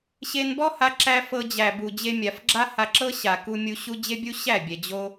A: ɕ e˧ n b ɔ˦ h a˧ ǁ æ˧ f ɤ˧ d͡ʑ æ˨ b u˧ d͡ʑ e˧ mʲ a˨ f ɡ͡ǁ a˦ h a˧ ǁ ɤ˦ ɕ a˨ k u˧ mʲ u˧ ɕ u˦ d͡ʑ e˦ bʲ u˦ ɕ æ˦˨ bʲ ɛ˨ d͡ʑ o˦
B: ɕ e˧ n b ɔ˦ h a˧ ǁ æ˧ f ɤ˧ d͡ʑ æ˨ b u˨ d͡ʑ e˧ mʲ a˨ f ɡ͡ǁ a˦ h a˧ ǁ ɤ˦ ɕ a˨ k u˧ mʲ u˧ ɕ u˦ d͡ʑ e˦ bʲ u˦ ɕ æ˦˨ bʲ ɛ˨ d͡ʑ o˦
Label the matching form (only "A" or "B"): B